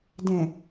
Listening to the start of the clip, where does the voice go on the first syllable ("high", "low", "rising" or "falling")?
low